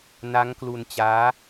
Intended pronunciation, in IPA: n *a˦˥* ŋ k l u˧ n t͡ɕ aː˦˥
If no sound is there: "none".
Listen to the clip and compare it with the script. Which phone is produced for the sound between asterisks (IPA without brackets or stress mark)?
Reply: a˦˥